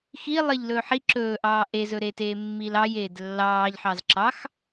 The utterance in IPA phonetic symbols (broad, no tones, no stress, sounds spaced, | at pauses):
x i lˠ ɪ ʎ l ɵ ħ i ǁ ɵː ʔ ɑː ʔ e z ɵ ɾ e t eː mː i l ɑ j eː d lː ɑː ʎ ħ ɑ z ǁ ɑ x